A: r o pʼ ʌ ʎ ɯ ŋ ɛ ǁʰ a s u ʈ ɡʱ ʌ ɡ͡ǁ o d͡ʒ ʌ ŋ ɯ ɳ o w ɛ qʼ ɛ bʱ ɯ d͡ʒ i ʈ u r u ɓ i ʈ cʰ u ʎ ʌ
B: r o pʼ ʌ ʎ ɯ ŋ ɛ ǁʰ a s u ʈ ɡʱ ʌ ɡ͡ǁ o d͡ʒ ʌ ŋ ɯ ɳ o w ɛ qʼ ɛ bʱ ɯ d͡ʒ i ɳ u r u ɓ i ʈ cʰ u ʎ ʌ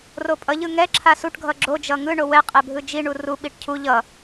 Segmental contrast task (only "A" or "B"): B